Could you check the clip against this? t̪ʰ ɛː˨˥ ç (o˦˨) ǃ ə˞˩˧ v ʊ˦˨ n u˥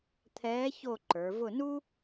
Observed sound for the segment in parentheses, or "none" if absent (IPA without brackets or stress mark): o˦˨